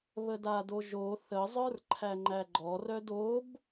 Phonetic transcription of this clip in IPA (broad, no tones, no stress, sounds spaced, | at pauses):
β ə d a d o ʒ o θ ə zˤ ə˞ r ǃʰ æ ŋ͡ǃ æ ɡ͡ǃ ɔ r œ d o b